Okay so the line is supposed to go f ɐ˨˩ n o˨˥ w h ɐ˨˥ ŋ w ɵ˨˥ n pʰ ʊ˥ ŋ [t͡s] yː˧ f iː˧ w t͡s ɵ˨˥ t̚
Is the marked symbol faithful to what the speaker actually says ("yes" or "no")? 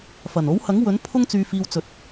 yes